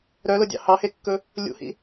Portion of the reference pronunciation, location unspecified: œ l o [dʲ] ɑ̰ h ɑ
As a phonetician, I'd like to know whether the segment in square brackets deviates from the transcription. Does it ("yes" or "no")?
no